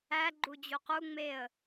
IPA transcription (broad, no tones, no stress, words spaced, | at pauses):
æɡ͡ǃu d͡ʑuqu ŋ͡meə̯